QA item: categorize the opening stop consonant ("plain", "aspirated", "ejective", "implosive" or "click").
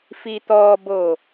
plain